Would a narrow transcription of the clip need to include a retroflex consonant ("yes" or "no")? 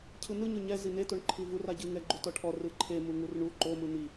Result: yes